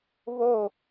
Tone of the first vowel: falling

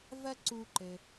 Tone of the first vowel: high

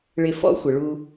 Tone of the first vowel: low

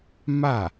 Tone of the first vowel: falling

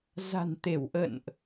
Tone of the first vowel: low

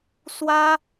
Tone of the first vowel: high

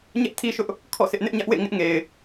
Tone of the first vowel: high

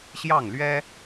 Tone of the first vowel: falling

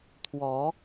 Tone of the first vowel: rising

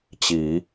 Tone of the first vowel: rising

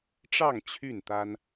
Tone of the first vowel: falling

